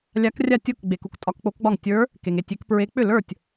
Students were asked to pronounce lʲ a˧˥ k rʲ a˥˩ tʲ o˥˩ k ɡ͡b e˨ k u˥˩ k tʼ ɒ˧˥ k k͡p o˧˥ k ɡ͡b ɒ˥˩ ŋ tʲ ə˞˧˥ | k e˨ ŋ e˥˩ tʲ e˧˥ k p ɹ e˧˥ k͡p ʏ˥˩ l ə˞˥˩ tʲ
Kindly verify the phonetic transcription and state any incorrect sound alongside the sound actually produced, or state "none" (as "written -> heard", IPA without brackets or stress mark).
none